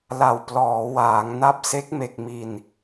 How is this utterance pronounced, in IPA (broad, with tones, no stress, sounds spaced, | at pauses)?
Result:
l a˨˩ w p l ɔː˩˦ w aː˩˦ ŋ n a˦˥ p̚ s e˦˥ k̚ m e˨˩ k̚ m i˨˩ n